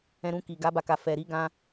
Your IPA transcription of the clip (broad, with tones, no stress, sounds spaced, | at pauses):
ɛ̃˧ ɾ ũ˧ k i˨ ɡ a˨˦ b a˧ k a˨ f ɛ˨ ɾ i˨˦ ɡ ã˧